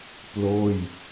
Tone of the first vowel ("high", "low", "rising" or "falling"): falling